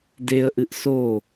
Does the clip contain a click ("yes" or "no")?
no